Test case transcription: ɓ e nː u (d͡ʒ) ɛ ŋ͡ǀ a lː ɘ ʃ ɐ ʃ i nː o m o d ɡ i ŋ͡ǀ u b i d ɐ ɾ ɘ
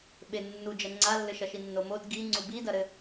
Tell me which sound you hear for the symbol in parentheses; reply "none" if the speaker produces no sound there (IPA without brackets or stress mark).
d͡ʒ